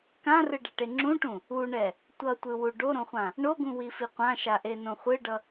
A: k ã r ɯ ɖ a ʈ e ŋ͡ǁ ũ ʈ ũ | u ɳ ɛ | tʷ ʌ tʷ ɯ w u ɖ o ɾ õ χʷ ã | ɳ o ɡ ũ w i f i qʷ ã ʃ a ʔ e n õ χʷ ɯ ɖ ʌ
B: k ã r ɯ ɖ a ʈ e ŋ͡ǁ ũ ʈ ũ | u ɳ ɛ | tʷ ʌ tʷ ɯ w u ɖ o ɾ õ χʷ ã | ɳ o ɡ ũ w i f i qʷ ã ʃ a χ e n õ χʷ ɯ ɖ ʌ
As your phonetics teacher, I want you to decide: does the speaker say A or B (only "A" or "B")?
A